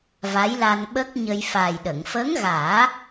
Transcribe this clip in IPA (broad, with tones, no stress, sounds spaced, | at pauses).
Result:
v a˧˥ j l a˧ n ɓ ə˦˥ k̚ ɲ ə˧ j f a˨˩ j ɗ ə˨˩˨ ŋ f əː˧˥ ŋ ɣ aː˨˩˦